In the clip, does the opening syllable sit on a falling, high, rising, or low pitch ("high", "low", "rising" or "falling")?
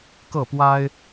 falling